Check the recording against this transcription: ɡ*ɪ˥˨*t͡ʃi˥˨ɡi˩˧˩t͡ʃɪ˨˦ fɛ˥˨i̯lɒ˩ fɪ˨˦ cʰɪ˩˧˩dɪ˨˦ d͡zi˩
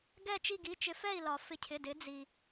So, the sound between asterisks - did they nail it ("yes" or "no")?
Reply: no